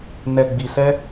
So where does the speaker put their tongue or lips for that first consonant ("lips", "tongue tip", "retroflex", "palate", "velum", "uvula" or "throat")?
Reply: tongue tip